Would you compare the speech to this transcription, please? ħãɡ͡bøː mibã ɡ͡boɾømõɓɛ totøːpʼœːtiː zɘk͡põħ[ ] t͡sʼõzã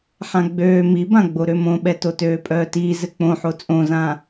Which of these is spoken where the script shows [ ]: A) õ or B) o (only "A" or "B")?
B